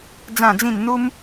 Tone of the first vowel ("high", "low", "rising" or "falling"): falling